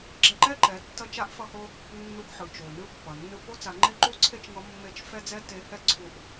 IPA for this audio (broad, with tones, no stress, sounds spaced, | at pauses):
ɡ͡ǁ ɛ˧ ǃ ɛ˥ ǃ ɛ˩˧ tː ʌ˧ t͡ʃ a˧˥ ʔ f ʌ˧ h o˧ | nː u˧ ɡ ħ ɯ˩ t͡ʃ o˩ n ɯ˧˥ pː ʌ˩ nː ɯ˧ p o˧˥ t͡s a˩˧ ŋ͡ǃ e˧˥ ǃ u˧˥ ǀʰ e˥ t͡ʃ ŋ ʌ˧˥ mː e˧˥ t͡ʃ f ɛ˥ d͡z ɛ˥ t e˧˥ h ɛ˧˥ ǀʰ u˧ ʔ